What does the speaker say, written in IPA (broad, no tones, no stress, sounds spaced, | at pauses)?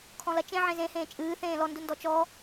kʰ ɔ̃ l ɐ t͡ʃ ẽ ʕ ẽ z ẽ h ẽː t͡ʃʼ ɨː θ ẽː l ɔ n d u n d ɔ t͡ʃ ɔ